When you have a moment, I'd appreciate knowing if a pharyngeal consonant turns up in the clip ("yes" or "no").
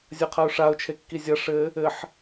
yes